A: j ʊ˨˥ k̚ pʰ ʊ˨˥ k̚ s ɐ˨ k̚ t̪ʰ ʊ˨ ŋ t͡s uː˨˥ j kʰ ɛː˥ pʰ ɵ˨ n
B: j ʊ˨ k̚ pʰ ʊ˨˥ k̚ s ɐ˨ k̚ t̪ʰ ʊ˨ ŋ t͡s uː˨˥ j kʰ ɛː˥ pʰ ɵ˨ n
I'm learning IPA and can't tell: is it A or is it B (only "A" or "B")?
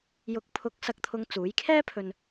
A